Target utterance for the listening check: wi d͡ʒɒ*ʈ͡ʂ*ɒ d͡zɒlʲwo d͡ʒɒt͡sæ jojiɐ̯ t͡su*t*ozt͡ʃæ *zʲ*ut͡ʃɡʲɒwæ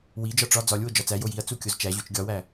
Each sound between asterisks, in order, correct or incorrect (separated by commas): correct, incorrect, incorrect